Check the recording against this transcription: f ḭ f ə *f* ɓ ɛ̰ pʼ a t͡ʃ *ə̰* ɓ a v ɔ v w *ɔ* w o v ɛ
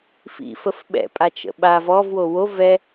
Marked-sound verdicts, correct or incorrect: correct, correct, incorrect: o

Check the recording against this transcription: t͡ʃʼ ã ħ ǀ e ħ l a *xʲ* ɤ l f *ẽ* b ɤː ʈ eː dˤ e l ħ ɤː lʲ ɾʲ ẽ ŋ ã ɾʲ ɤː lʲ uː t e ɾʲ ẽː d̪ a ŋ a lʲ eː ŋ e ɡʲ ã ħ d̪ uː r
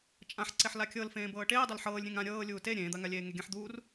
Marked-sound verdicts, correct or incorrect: incorrect: kʲ, incorrect: ẽː

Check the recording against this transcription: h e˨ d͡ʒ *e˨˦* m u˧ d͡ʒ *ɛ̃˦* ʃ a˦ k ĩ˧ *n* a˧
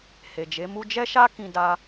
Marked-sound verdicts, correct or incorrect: correct, incorrect: ɛ˦, incorrect: d

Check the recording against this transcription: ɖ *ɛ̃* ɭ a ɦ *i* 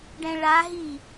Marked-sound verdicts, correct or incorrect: correct, correct

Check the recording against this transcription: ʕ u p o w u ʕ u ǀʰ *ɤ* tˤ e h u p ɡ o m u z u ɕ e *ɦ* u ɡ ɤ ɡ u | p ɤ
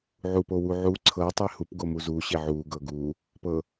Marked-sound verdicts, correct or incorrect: correct, incorrect: ʕ

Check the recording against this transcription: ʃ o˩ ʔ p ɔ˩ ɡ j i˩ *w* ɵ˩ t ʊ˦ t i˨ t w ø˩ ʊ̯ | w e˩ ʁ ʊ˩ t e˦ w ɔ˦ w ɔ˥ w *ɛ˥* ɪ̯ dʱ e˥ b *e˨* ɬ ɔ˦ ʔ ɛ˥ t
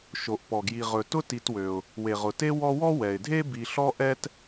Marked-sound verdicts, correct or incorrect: incorrect: ʁ, incorrect: ɛ˩, incorrect: i˨

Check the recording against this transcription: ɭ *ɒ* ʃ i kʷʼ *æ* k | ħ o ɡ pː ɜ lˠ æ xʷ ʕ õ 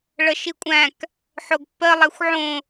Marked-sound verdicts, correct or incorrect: incorrect: ʌ, incorrect: æ̃

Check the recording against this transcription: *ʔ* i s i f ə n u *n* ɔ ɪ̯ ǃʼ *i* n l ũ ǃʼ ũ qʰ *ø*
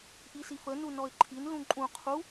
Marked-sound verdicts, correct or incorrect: correct, correct, correct, incorrect: u

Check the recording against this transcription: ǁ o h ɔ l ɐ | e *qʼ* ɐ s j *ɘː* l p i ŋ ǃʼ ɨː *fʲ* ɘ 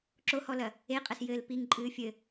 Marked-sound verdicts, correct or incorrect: correct, correct, correct

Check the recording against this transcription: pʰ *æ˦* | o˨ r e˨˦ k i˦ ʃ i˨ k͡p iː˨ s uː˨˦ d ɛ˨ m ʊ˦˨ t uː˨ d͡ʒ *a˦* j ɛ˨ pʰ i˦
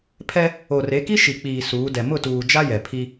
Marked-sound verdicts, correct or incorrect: incorrect: ɛ˦, correct

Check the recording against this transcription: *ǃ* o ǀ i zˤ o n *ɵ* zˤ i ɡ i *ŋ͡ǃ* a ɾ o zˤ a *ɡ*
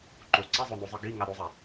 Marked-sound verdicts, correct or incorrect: correct, incorrect: o, incorrect: ŋ, incorrect: none

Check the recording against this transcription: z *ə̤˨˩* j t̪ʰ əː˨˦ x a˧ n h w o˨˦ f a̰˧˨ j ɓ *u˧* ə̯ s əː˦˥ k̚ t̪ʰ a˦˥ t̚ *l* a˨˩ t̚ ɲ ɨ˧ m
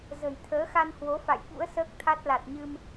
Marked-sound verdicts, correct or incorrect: correct, incorrect: ṵ˧˥, correct

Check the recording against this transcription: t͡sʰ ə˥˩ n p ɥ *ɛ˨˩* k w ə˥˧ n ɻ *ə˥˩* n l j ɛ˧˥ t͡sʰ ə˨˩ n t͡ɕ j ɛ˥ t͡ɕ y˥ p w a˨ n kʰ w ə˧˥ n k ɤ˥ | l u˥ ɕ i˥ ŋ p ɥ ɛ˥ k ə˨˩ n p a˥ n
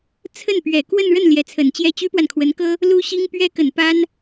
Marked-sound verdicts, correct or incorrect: correct, correct

